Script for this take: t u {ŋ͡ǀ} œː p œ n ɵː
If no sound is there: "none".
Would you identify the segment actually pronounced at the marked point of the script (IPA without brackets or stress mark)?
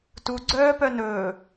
ɡ͡ǀ